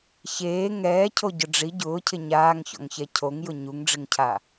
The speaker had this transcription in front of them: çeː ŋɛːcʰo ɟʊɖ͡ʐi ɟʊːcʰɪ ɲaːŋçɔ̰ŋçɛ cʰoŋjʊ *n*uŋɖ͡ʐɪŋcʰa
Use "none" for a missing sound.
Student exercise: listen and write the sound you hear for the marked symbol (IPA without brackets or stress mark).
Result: ɲ